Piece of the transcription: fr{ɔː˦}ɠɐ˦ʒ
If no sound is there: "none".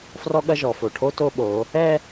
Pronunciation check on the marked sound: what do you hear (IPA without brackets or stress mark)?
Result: ɔ˦